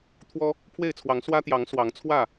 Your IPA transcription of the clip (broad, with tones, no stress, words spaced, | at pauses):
t̪ʰwɔ˦ | pʰwe˥˨ɪ̯t͡sʰwɑ˨˦ŋ swä˦t̪jɑ˨˦ŋ swɑ˨˦ŋt͡sʰwä˥˨